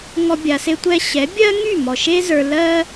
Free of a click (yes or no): yes